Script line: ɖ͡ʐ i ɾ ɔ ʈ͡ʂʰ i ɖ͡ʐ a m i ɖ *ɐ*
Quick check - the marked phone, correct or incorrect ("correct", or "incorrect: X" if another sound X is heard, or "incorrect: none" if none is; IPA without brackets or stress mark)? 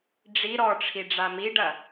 correct